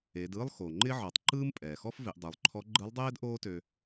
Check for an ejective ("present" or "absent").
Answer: present